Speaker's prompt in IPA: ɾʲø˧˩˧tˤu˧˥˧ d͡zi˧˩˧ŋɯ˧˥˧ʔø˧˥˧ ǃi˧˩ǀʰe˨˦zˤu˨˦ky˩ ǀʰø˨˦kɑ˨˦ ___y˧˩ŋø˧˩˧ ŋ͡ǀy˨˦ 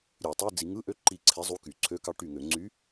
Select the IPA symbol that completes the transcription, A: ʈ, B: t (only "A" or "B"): A